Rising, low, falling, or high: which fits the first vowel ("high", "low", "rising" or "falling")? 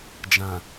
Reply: low